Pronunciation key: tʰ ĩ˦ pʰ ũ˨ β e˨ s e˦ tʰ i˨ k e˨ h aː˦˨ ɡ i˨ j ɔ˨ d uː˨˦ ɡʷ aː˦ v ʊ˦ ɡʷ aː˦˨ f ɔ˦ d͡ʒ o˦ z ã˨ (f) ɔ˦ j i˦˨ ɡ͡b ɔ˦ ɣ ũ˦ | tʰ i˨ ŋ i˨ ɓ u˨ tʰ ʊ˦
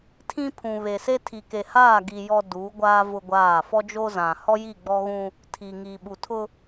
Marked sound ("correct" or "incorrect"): incorrect